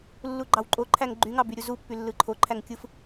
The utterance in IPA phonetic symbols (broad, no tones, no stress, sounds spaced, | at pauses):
lː u ɡ͡ǃ ɑ w ǃʼ o ǃʰ æ ŋ ɡ͡ǃ y ŋ ɑ b y ɾʲ u z u pː y lː ɯ ǃʰ o ǃʰ æ ŋ kʲ ɯ f